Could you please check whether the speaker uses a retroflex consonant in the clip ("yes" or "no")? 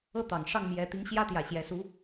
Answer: yes